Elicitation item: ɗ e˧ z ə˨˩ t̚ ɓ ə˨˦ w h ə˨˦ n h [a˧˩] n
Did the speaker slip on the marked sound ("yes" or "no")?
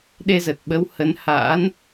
yes